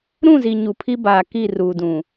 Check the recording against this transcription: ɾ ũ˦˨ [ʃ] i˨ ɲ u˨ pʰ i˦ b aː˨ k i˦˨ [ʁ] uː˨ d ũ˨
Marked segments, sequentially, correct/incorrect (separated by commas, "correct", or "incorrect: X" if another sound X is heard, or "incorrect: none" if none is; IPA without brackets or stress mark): incorrect: z, incorrect: r